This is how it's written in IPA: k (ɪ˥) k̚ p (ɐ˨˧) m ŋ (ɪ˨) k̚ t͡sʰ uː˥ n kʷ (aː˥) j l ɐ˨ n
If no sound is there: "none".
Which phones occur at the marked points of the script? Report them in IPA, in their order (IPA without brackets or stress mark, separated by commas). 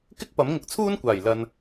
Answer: ɪ˥, ɐ˨˥, ɪ˨, aː˨˩